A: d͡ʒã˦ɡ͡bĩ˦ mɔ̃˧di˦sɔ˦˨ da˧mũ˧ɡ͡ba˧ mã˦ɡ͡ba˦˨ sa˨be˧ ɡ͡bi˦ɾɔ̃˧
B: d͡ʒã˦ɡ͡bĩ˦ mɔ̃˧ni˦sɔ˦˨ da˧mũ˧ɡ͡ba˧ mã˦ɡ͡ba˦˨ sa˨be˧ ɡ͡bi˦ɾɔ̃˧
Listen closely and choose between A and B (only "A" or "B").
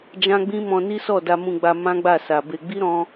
B